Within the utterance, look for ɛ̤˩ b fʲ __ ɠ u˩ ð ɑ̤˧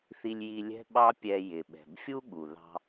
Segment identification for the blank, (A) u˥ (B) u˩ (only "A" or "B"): A